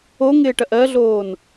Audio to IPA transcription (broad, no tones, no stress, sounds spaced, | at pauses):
o ŋ ɪː ʈ ɐ ʔ ɜ ɮ oː n